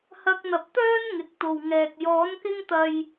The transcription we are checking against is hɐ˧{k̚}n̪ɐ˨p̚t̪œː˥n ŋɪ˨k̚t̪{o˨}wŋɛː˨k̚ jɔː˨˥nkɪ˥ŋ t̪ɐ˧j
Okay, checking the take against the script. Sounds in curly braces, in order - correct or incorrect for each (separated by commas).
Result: correct, correct